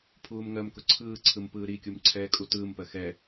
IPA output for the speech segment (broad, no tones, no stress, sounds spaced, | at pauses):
pʰ uː m ŋ ɜ m k ʊ ǀʰ ɯː ǀʰ ɯ m p ɯː ɾ i kʲ u m ǀʰ ɛː kʼ u t ɯː m p ɜ x ɛ